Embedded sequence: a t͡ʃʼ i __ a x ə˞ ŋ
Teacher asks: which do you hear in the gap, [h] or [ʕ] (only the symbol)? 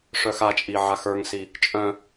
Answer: ʕ